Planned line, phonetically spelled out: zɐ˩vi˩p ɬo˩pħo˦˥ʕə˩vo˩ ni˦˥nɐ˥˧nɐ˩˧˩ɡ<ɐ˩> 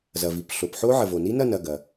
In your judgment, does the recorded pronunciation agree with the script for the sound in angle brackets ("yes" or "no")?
yes